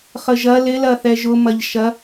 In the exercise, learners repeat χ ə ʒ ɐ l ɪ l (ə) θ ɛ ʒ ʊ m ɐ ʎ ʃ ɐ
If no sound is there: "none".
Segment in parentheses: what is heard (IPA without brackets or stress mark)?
ɐ